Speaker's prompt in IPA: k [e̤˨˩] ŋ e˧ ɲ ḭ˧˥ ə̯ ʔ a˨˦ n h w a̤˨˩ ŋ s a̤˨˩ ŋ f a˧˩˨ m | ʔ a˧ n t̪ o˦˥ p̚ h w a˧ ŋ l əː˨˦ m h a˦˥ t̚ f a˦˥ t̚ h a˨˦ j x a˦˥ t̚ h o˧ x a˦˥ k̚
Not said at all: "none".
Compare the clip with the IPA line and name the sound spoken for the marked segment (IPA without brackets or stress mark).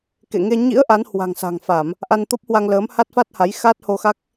ḛ˧˨